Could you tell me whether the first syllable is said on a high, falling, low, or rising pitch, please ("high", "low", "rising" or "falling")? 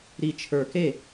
low